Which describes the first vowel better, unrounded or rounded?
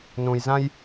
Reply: rounded